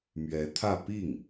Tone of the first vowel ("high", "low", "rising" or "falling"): rising